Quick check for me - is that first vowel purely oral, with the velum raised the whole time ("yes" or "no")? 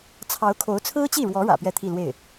yes